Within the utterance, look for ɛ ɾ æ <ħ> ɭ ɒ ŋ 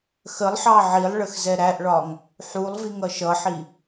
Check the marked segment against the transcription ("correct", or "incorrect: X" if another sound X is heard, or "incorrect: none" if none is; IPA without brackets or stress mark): incorrect: ʔ